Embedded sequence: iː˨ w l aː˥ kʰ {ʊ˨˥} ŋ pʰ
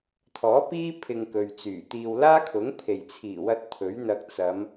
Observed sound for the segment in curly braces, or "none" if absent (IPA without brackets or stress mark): ʊ˨˥